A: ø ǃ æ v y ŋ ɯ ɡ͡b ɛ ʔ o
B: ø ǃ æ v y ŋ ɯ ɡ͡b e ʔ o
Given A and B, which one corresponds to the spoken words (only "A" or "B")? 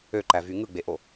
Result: B